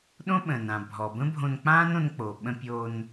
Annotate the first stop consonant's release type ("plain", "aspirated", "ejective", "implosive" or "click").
implosive